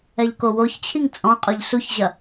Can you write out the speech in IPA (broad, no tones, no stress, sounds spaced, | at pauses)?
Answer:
ɛ ʎ k o w o ç t͡ɕʰ i ŋ t͡sʼ ɔ̃ qʼ ʊ ʎ s u ç ʑ ɐ